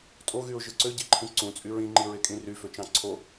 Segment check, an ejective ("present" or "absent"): present